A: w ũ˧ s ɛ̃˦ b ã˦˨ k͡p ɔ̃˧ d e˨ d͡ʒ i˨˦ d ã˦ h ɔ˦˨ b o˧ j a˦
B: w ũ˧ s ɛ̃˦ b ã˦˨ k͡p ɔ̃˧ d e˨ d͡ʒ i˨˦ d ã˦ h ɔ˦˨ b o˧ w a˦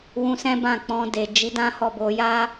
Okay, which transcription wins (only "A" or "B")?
A